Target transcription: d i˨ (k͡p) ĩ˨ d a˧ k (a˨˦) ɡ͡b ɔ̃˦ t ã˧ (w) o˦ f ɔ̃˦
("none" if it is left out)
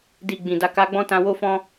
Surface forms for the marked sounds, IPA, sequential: ɡ͡b, a˧, w

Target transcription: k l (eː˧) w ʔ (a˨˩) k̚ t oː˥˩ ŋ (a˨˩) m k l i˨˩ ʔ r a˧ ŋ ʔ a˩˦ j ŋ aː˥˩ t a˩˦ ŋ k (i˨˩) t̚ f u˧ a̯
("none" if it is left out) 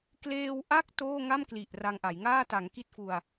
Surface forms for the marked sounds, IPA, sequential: eː˧, a˦˥, a˥˩, i˦˥

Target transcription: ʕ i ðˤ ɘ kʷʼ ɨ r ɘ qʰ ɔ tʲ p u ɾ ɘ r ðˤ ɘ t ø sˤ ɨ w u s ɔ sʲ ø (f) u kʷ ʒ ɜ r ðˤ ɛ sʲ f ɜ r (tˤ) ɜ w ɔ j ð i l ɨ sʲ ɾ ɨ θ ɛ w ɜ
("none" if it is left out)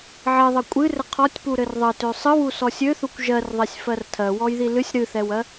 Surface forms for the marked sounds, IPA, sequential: θ, tʰ

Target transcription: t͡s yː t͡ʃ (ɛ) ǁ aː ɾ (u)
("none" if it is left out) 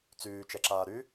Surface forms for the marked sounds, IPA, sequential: ɛ, y

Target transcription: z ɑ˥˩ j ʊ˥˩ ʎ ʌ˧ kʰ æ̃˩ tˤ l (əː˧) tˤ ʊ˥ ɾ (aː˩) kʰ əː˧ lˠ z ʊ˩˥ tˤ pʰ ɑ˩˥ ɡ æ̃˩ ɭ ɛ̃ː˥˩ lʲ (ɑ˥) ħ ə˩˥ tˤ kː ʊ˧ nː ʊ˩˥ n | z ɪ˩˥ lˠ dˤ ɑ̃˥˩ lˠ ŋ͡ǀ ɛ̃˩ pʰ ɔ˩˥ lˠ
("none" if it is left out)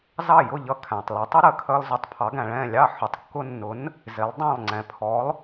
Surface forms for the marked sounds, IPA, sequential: əː˩˥, əː˩, ɑ˥˩

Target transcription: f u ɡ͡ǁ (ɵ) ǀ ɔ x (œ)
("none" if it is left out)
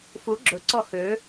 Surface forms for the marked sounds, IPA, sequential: ɵ, ø

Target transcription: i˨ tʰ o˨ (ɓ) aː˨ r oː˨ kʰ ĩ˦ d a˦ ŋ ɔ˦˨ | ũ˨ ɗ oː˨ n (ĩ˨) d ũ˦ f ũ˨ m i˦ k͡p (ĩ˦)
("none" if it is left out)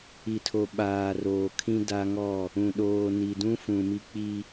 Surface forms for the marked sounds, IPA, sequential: ɓ, i˨, i˦

